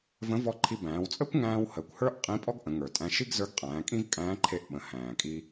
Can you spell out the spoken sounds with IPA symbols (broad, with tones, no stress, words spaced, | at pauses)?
və̃˧˥ vɔ˧ǃʰi˧ bæ̃ː˩˧wt͡sʼəː˥kʷŋæ̃ː˧w həː˩kʷhə˞˥ʔ qʼĩ˧˥pʼɔ˥ɡ ʔə̃˩˧ŋə˞˩tʼæ̃˧ ʃi˥ɡ zə˞˧˥ɡqʼæ̃ː˩˧ kʼĩ˥vkʼæ̃ː˧˥ǃʰe˧ʔ ɓə̃˩˧ hæ̃ː˩kʼi˧